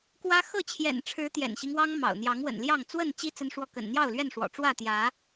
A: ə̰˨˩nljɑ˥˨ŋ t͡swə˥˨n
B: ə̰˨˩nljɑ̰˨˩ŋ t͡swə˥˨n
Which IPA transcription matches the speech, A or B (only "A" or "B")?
A